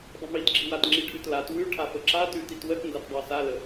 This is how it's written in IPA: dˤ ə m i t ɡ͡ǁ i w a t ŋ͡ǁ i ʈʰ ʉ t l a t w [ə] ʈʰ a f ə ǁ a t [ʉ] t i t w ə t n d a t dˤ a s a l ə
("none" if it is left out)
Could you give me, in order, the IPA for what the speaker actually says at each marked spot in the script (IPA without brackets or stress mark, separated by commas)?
ʉ, ʉ